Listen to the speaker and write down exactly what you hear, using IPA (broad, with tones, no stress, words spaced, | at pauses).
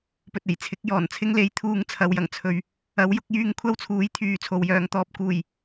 pɵ˨t̚e˨˩jt͡sʰɪ˨˥k̚ jɔː˨˩nt͡sʰɪ˥ŋ le˨˥jt̪ʰuː˧ŋ t͡sʰɐ˨˧wjɐ˨˩ŋt͡sʰɵ˨ɥ | ɐ˨˥wjʊ˨˥k̚jyː˧ŋ kʷʰɐ˥wt͡sʰuː˨˥j t̪ʰyː˨˧ t͡sʰo˨wjœː˨ŋt̪ɔː˧p̚ kuː˨˩j